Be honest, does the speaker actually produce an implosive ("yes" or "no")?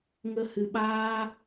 yes